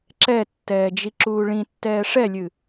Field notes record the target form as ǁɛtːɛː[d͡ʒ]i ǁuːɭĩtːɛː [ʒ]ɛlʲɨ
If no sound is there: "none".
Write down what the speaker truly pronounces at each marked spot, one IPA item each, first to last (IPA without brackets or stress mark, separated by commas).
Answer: d͡ʒ, ʂ